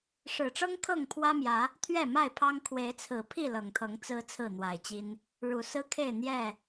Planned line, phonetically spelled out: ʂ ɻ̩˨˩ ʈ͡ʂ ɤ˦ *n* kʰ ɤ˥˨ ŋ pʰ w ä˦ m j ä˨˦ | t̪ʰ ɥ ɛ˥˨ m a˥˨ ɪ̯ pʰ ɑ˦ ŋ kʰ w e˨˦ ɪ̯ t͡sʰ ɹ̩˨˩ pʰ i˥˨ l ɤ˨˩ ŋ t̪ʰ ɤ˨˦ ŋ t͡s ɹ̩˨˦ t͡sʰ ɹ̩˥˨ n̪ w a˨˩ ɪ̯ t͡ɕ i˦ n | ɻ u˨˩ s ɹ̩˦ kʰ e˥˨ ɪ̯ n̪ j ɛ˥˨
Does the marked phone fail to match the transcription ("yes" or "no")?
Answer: yes